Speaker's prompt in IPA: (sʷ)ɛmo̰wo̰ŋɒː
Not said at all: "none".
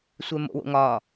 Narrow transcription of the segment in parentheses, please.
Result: sʷ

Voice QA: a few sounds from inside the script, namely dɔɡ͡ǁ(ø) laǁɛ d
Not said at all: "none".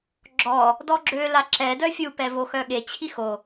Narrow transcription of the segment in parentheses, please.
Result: ø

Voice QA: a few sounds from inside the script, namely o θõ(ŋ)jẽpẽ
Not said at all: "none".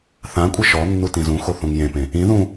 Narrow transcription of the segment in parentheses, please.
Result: ŋ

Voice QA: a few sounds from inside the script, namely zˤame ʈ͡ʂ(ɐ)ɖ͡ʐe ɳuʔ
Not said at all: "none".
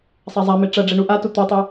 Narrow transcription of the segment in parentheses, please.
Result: ɐ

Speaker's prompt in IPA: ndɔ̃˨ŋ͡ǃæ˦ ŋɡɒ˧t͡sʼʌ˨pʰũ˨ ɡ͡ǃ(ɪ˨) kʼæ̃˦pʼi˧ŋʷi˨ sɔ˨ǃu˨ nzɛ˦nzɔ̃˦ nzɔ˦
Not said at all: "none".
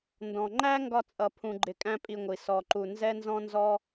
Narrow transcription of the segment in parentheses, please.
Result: ɪ˨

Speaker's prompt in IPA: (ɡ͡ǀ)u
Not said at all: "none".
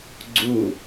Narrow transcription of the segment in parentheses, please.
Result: ɡ͡ǀ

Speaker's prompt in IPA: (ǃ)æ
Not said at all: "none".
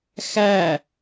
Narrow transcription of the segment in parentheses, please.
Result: x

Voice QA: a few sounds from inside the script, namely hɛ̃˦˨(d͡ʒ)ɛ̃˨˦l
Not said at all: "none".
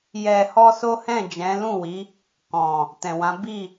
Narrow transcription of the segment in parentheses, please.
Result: d͡ʒ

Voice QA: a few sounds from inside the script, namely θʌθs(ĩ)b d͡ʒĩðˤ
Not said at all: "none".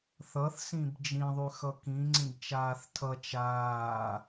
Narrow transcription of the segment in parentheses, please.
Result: ĩ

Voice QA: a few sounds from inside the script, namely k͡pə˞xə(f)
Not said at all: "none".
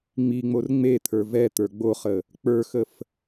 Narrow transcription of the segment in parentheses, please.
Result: f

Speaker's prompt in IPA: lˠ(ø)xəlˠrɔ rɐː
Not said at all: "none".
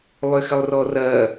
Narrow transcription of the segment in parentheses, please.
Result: ø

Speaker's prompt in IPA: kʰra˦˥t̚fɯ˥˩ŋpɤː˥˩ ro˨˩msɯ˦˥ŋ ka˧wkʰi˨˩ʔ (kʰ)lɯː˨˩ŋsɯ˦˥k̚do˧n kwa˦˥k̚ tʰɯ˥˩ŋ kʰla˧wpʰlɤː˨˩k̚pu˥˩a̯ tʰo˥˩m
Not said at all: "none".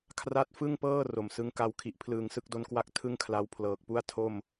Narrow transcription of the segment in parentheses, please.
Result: pʰ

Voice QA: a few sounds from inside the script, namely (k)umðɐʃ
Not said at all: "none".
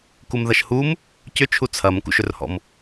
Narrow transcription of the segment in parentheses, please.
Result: k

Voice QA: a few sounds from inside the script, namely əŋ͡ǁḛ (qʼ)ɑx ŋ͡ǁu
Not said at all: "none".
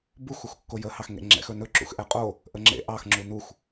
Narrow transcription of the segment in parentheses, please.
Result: ʔ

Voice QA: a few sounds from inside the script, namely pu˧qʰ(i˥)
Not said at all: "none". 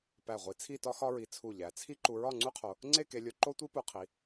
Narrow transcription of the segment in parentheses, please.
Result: i˩˧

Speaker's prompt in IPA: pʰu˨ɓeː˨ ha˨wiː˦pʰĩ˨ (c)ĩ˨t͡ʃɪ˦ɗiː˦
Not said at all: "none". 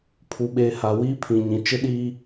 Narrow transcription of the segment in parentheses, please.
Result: ɲ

